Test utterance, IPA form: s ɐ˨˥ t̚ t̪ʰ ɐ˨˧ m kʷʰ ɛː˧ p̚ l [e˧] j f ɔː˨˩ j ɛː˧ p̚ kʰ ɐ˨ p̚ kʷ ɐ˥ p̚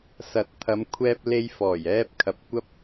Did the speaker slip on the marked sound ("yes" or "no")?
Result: no